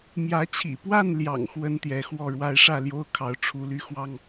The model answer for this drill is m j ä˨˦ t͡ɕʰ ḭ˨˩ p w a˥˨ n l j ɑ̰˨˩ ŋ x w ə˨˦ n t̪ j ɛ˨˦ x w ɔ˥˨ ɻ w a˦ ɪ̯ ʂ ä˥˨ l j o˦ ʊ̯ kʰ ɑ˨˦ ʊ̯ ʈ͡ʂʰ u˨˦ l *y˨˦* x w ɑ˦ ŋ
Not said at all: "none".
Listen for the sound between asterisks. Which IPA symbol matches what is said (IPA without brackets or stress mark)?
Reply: y˨˦